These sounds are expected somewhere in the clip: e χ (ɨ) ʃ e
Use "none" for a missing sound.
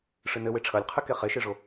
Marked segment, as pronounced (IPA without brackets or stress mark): e